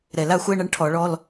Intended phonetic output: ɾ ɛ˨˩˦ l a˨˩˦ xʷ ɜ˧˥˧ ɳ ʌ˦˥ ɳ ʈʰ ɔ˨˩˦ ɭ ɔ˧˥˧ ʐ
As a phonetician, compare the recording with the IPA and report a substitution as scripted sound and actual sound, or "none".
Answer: ʐ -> l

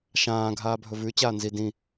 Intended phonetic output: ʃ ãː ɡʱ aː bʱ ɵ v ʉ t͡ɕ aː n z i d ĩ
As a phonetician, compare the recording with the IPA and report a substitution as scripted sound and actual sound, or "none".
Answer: none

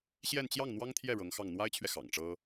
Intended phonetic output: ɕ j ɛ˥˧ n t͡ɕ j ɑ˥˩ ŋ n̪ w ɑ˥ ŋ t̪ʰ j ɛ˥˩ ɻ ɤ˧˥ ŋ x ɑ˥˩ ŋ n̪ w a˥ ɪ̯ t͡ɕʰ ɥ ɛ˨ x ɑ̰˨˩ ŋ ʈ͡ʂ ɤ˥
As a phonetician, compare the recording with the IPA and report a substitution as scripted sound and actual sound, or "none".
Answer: none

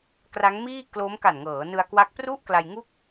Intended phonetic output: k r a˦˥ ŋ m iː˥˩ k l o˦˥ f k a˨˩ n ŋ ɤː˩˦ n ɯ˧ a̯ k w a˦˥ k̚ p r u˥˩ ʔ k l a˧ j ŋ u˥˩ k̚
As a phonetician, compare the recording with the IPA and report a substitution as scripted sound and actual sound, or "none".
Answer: f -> m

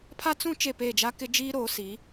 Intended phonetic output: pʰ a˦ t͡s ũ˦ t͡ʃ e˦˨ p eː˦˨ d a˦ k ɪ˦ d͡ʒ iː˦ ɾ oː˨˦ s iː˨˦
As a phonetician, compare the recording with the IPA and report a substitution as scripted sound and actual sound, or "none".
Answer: d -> d͡ʒ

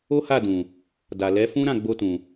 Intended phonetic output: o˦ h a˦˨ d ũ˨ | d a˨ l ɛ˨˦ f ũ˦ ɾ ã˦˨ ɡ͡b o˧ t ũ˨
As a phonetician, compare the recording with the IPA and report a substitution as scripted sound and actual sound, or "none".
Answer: none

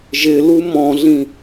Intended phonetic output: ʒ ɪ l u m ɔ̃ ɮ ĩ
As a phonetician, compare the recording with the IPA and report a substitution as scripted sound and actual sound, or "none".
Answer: none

